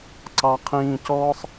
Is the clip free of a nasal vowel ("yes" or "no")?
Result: no